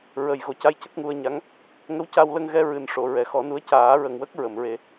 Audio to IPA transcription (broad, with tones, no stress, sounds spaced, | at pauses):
ɹ ə˨˩ j ɣ o˨˩˦ c a˧˥ j c ə˦˥ k̚ ŋ u˧ ə̯ ɲ a˧˥ ŋ | ŋ ə˧˥ w c a˧ w l ə˧ ŋ ɣ ɛ˧ ɹ ɨ˨˩ n ʂ o˨˩˨ ɹ ɛ˨˩ x ɔ˨˩˦ n u˧˥ ə̯ c aː˨˩˦ ɹ ə˨˩ ŋ w ə˦˥ k̚ ɹ ə˨˩˨ m ɹ e˧